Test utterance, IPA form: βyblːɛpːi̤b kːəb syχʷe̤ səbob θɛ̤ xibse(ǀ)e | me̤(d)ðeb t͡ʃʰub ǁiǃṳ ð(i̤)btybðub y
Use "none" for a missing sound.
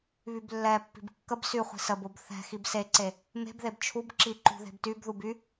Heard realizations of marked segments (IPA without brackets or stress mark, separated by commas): ǀ, b, e̤